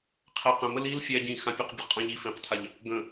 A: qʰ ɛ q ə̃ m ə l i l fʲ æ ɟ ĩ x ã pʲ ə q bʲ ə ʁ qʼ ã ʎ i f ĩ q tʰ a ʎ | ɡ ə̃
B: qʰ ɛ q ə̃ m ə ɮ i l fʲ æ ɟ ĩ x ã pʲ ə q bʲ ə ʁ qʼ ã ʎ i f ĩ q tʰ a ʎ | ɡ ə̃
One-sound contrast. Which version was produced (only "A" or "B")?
A